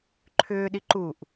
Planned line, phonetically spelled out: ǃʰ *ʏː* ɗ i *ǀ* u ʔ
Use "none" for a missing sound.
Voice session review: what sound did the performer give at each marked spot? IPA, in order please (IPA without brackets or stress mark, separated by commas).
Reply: ʏː, ǃ